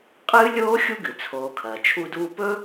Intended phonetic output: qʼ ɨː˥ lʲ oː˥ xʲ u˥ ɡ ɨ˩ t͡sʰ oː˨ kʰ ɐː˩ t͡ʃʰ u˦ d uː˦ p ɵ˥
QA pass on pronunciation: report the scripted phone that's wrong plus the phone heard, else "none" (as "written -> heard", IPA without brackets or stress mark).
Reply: none